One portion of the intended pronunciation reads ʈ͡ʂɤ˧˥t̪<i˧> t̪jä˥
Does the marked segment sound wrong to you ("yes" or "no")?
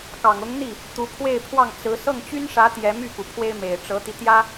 no